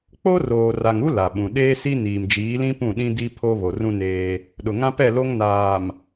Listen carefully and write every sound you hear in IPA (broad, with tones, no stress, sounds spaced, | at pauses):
k͡p o˦ r oː˨ r a˨ ŋ u˦ l a˨ ɓ ũ˨ ɗ eː˦ s i˦ n iː˨ m d͡ʒ iː˨˦ l ĩ˦ p ũ˦˨ ɗ ĩ˦ d i˦ pʰ o˦ β o˨ r ũ˦ n eː˦ | ɗ ʊ˨ ŋ ã˦ p ɛ˦˨ l o˦ ŋ n aː˨ m